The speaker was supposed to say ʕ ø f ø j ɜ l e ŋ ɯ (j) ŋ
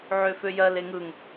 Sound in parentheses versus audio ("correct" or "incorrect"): incorrect